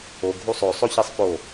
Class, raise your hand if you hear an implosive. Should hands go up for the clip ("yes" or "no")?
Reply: no